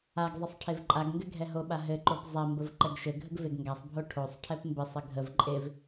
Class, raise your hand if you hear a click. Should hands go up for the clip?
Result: yes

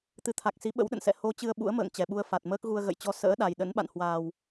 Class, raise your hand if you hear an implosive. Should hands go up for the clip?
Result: yes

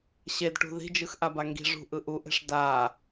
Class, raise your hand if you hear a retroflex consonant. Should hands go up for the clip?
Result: yes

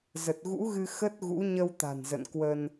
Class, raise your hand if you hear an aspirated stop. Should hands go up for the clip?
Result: no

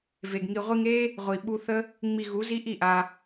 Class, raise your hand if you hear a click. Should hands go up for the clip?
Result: no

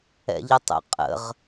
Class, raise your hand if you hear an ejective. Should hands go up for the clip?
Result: yes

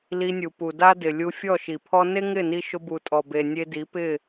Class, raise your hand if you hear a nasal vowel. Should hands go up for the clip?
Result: no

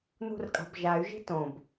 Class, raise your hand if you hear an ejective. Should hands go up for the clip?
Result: yes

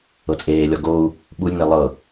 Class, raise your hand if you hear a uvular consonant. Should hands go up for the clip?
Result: no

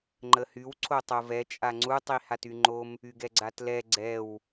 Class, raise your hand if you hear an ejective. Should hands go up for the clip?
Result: yes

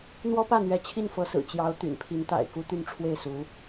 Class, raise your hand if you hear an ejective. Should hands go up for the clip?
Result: no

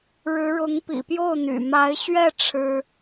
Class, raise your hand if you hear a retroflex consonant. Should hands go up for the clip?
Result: yes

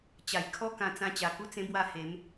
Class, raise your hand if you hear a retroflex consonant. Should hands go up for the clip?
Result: no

